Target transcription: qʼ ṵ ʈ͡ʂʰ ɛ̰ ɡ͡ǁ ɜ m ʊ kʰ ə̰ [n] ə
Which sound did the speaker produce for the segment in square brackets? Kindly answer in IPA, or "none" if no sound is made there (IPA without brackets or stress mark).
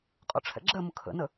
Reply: n